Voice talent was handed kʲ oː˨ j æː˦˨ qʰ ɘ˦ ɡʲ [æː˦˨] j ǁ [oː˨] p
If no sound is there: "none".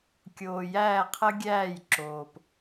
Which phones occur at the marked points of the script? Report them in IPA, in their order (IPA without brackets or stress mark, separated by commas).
æː˦˨, oː˨